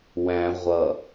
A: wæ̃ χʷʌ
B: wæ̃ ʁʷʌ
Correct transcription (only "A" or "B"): B